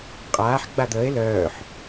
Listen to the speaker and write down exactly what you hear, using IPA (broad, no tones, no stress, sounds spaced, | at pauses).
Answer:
qʼ aː ħ ɡ͡b a d̪ əː e̯ l œː ħ